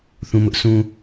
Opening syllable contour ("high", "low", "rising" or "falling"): low